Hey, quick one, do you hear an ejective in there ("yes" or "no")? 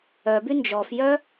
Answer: no